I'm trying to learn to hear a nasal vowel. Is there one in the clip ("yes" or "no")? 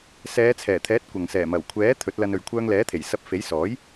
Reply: no